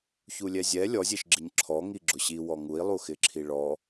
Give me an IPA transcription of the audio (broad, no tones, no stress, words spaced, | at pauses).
çulʲɛzʲɛ lʲɔzʲeʃ ɡ͡ǁɪɲǁʰɔ ŋiɡ͡ǁʊɕiwɔ ŋui̯lˠuxɪǁʰi ɭɔ